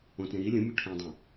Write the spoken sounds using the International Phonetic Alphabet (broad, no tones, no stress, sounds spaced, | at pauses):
õ t ɾ ĩ ɾ i lʲ ũ mʲ u ʈʰ æ̃ dˤ æ̃